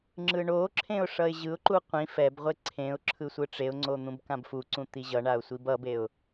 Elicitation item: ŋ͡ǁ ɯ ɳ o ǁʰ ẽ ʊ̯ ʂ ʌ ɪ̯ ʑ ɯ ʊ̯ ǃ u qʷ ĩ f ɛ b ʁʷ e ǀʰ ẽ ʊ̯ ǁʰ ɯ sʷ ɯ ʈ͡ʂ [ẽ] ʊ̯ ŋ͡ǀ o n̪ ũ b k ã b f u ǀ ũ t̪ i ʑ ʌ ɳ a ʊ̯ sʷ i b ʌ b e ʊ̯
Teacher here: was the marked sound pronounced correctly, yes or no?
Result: no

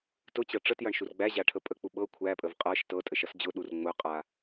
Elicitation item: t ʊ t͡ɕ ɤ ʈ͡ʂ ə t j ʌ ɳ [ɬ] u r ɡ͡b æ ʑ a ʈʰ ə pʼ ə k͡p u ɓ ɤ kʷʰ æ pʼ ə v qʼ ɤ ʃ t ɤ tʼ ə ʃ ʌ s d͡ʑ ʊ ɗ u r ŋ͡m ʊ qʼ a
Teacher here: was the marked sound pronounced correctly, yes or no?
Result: no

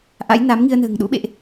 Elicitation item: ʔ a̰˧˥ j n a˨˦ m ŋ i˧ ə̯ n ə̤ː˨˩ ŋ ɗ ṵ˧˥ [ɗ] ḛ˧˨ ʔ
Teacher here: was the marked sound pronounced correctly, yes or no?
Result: no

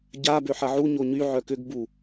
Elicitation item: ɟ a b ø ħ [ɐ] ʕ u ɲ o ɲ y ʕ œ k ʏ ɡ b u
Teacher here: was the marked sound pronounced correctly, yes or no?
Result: yes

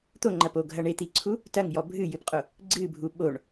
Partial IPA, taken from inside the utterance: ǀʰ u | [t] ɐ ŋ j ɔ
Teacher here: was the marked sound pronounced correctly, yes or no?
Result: yes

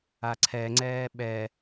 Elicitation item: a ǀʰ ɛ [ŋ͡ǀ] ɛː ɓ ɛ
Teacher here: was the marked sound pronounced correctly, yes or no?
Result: yes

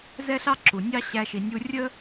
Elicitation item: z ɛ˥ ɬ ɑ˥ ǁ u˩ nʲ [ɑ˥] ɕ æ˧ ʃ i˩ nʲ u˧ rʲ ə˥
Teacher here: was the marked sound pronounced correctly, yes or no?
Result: yes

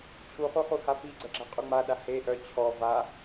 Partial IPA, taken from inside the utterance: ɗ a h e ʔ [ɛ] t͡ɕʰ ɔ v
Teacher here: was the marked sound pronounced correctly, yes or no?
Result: no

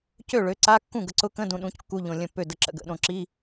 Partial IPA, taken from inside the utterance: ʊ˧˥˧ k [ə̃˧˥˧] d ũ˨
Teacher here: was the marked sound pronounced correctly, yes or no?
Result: yes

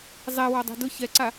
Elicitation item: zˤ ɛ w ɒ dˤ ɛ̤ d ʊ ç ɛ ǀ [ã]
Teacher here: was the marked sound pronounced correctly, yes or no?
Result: no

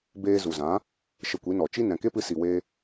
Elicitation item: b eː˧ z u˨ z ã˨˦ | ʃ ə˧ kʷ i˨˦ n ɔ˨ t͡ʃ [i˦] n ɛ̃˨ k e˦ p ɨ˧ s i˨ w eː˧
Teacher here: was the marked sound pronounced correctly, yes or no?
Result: yes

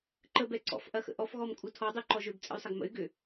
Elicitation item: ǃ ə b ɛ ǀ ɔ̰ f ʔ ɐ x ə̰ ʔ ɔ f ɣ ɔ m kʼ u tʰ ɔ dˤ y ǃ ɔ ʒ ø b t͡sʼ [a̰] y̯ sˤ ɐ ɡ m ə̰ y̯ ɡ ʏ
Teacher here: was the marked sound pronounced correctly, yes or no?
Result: no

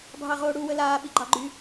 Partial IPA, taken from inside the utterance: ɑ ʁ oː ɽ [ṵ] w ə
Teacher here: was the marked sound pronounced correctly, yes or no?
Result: no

